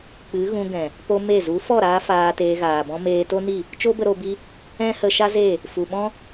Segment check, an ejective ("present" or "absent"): absent